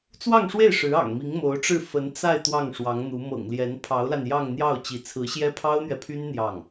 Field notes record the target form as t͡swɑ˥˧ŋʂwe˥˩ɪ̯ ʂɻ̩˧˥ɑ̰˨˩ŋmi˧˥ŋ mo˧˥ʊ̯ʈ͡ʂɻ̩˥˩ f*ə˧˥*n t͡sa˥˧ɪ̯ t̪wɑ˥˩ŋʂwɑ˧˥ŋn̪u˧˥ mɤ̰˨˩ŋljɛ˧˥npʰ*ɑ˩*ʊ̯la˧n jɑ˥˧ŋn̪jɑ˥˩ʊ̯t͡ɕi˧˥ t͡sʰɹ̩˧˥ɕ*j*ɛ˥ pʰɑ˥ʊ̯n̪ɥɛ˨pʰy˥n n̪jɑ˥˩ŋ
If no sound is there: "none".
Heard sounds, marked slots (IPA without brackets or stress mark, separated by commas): ə˧˥, ɑ˧˥, j